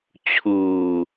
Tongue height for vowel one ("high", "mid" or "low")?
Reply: high